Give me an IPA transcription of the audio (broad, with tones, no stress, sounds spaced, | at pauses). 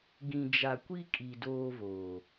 ɡ ĩ˨ d͡ʒ a˨ kʷ i˦ kʼ i˨ d oː˦ v oː˨